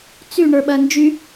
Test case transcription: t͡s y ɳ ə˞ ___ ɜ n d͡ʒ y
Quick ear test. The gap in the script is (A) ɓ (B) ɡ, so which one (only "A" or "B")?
A